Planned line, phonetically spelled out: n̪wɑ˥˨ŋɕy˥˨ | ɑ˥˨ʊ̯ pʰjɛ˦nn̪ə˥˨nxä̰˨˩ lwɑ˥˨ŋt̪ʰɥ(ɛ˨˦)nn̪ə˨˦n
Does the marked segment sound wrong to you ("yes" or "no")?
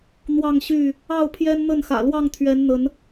no